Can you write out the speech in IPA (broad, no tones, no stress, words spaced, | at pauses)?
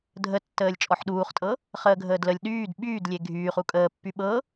dʱə tːəːlʲt͡ʃʼɔħɗuːχtʼɤ | χəːɡʱəːdləlʲ ɗyːd ɓyːdlʲe ɡʱyːχu kʼəːpːy ɓɤ